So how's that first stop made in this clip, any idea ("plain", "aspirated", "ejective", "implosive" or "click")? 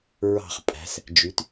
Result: ejective